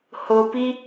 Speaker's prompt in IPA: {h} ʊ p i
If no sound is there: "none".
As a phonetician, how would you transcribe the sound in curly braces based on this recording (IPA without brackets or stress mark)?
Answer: h